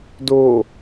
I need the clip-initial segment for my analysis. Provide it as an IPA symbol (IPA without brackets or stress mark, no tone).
d